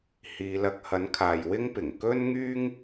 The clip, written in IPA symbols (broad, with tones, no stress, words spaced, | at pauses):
hiː˨˧lɐ˧k̚ hɐ˨˥nkʰaː˨j wɪ˥ŋpɪ˨˩ŋ kɵ˥nŋyː˥ŋ